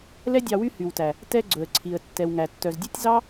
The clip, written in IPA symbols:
l ɛ˦ dʲ ɑ˧ w y˦ h y˨ w t æ˨ | t ɛ˧ ɡ͡ǀ ɵ˨ ə̯ ǀʰ i˨ ə̯ tː ɛ˨ w ŋ æ˨ tː œ˨ z dʲ ʉ˦ tʲ z ɑ˦

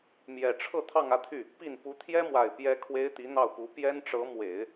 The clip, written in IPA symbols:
m j ɛ˨˩ ʈ͡ʂʰ ɤ˥˧ t̪ʰ ɑ˥˧ ŋ ä˥˧ t̪ʰ y˥˩ | p i˥˩ n p u˧˥ t̪ʰ j ɛ˥ m w a˨˩ ɪ̯ p j ɛ˥ kʰ w e˥ ɪ̯ t̪ i˧˥ n̪ ɑ˥˩ ʊ̯ p u˧˥ p j ɛ˥ n ʈ͡ʂ ɤ˧˥ m w e˨˩˦ ɪ̯

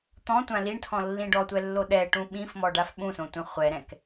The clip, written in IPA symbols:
t̪ ɔ̃ tʷ ã l i ɳ tʰ ɔ̃ lː ĩ ɖ ɔ tʷ ɛ lː o ɗ ɛ ʈ ũ ɓ ĩ f m ɔ ɖ a f ɓ ũ s õ tʷ ɛ̃ χʷ ɛ ɾ ɛ̃ k

